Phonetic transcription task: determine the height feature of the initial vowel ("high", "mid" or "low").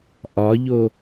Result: low